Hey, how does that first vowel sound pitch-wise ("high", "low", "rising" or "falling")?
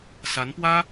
rising